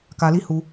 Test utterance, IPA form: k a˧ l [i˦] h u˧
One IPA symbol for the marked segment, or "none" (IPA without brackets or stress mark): i˦